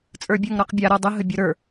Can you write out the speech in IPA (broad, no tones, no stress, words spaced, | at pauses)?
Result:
t͡sʼə˞bʲə˞ŋɾɔqbʲa ɾɔdˤəɦə bʲoɾə˞